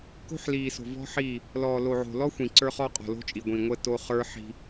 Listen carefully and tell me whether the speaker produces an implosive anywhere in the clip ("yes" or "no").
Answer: no